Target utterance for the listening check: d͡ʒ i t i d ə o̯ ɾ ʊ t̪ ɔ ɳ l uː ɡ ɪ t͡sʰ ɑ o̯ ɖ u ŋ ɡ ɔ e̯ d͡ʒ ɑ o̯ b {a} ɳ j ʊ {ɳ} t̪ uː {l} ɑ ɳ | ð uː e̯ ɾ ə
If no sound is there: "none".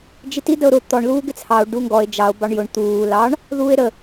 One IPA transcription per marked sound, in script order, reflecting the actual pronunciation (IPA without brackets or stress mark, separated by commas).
ɑ, ɳ, l